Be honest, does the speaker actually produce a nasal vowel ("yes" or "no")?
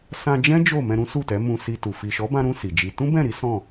yes